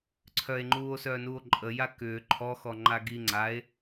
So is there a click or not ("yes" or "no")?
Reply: yes